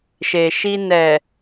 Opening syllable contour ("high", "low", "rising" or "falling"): low